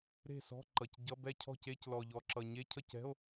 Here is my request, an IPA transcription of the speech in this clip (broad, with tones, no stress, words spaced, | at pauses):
ɾe̤˥˨sɔ̤˧˥˧ǃʌ˨˩cɟʌ˧˥˧ bɛ˥˨ cʰɔ̤˥˨ce˧˥˧c lɔ˨˩ʎɔ˨˩ ǁʌ˨˩ɲe˧˥˧cʰʌ˥˨cɛ̤˧˥˧o̯